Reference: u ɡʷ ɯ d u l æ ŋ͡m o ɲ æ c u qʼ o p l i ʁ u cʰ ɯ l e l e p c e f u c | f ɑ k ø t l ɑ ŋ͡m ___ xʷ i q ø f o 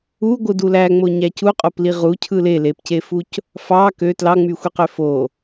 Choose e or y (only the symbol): y